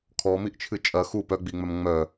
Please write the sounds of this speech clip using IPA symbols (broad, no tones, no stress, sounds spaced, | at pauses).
kʰ ɔ m i ʔ t͡ʃʰ ɨ t͡ʃʼ ɐ x u p œ ɡ͡b i ŋ͡m œ m ŋ͡m œ